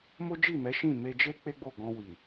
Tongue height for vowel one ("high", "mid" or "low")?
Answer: mid